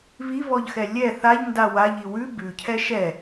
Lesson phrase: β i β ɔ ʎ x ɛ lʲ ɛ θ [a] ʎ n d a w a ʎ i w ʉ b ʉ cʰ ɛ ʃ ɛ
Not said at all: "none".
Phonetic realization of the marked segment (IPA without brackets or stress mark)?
a